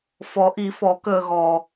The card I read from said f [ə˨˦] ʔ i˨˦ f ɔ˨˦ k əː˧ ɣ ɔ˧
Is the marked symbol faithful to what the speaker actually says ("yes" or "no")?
no